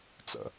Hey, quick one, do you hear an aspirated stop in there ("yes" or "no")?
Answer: no